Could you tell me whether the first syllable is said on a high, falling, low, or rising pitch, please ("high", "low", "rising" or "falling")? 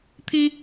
high